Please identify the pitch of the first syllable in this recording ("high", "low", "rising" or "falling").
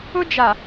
high